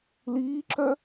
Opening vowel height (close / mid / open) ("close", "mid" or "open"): close